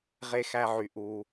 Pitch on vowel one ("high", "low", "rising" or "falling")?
high